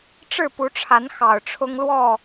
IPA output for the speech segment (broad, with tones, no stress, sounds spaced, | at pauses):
ʈ͡ʂ ɻ̩˥˨ p u˨˦ ʈ͡ʂʰ a˨˦ n x ɑ˨˩ ʊ̯ ʈ͡ʂʰ ʊ˦ ŋ l w ɔ˥˨